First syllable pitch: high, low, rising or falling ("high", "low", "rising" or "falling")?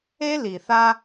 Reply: high